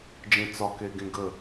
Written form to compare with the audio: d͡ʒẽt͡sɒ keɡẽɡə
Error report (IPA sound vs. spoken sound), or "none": none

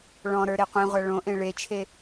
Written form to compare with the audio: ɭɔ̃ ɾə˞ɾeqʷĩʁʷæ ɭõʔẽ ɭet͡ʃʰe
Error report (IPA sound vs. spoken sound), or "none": none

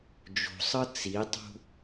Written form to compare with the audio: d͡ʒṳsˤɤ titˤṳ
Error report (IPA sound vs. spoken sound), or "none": t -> t͡s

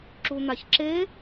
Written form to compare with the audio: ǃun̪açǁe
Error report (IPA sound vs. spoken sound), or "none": ǃ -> ǁ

